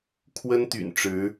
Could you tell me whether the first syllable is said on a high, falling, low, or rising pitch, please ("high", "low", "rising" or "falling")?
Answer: high